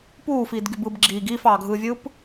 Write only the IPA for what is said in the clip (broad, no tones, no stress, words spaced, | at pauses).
puːfiːdɡyb ɯb ɡ͡ǁiːɡ iːfɑːɡʱɯːvʲɯːp